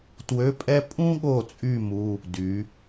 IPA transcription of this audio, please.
twø˧˥˧pʼɛ˥ pʼũ˥ɠo˦˨t͡sʼy˦˨ mu˧˥˧ | dy˩˧

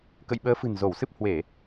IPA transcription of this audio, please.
kə̰˧˨jɓəː˨˦fɨ̤˨˩n zo˧˩wsɨ˦˥p̚ hwe˧˩˨

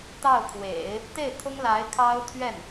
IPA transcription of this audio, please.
t̪ɑ˥˩ʊ̯ kʰwḛ˨˩˦ɪ̯ | t̪e˥˩ɪ̯t̪ʰʊ˥ŋ la˧˥ɪ̯kʰɑ˥ʊ̯ t̪ʰɥɛ˥˩n

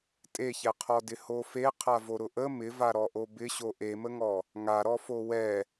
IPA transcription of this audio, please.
tʼeçɛqʰɔdɪ hofe qʰavoɾʊʔə mɪva ɾɔʔobɪɕo ʔeməŋɔ | ŋaɾɔ fowɛ

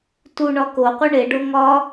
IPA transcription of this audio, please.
tuɳɒ koqʷi ɳeɖo ŋɒ

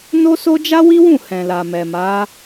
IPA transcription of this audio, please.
no˦so˦ d͡ʒa˦wi˦wũ˦˨ hɛ̃˨la˨mɛ˨ma˨˦

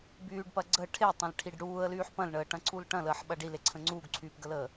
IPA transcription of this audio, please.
byːɖpɐ ɡ͡ǀə ʈʰetˤɐ̃lʈʰiɖ ɽuːə̯lyːħ pɐ̃lɳəːʈɐ̃ǀul ʈɐ̃ləːħɓɐ ɖileǀʰə̃ ŋ͡ǀuːɡǀʰyːpɡələː

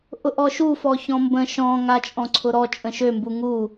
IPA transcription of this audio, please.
ʔʊʔɔʃu fɔçɔ̃mbə̃ ʃɔ̃ŋa t͡ʃʼɔ̃ǀʰʊɾɔ t͡ʃʼə̃ʃømbu ŋu

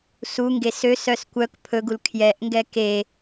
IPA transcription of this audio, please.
suŋɡes øsœs kʷœk pʰɵɡul kʰjɛʔŋɡɛ ke

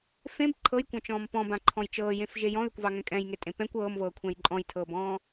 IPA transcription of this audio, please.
fẽb ǃʰɤjkʷɑ̃t͡ʃɔ̃ːm pɔ̃bãǃʰɔ̃j t͡ʃɤːjẽfʒe jɔ̃ðʏkʷvɑŋɛ̃ kʼɛ̃jŋetʼẽ pɛ̃kʷ ɤːmvɤːkʷʰɛ̃j ǃʼɔ̃jtʰɤːbɔ̃ː

